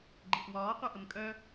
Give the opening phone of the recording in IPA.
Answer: ɡ͡ǃ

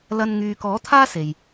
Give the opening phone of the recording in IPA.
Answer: l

